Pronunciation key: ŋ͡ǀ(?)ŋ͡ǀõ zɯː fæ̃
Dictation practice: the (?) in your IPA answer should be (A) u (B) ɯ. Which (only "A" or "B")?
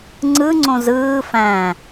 B